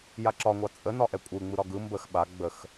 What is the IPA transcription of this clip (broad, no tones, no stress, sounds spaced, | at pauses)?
j a ǁ ɒ ŋʷ ɑ t͡sʼ ə n ɒ ʔ ɛ kʷʼ ɯ ŋ͡m ɯ ɾ ɒ ɡ ɯ m b ə x ɓ a ɡ͡b ə x